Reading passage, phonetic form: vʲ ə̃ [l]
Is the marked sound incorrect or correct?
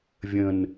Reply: incorrect